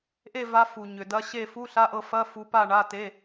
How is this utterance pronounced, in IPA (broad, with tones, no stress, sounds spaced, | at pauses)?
ʔ e˦˨ v a˨˦ f u˩ ɲ ʏ˩ d ɐ˨˦ ɕ e˦˨ f u˧˥˧ ɬ a˧˥˧ ʔ ɤ˦˨ f ɐ˧˥˧ f u˨˦ p a˦˨ ɳ a˧˥˧ t e˧˥˧